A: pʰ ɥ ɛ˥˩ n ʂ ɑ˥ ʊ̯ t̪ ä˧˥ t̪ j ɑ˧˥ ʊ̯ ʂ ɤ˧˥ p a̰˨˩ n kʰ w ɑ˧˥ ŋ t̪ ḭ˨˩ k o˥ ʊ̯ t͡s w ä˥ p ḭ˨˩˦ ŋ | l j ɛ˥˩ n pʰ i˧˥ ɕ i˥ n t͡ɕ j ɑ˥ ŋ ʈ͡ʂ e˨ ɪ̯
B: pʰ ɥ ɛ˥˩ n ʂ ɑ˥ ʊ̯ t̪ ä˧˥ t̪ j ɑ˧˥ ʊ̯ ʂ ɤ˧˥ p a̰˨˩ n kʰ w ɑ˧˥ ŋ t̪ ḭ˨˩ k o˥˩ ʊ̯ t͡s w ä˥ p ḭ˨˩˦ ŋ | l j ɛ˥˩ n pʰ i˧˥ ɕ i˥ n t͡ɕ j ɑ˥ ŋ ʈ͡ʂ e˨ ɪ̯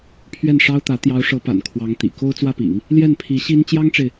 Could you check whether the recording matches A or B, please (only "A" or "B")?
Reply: A